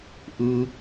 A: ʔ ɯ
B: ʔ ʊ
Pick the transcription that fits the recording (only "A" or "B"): A